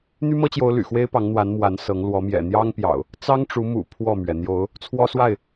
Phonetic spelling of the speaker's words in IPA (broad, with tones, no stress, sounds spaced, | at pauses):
n̪ y˦ m ɤ˦ t͡ɕ j o˨˦ ʊ̯ l y̰˨˩ x w e˦ ɪ̯ p ɑ˨˦ ŋ n̪ w a˨˦ n m w a˨˦ n s ɤ˨˦ ŋ l w ɔ˨˦ m j ɛ̰˨˩ n̪ j ɑ˦ ŋ p j ɑ̰˨˩ ʊ̯ | t͡s ɑ˦ ŋ ʈ͡ʂ u˨˦ m ṵ˨˩ pʰ w ɔ˥˨ m ɥ ɛ˩ n̪ j o˨˦ ʊ̯ | t͡sʰ w ɔ˦ s w a˥˨ ɪ̯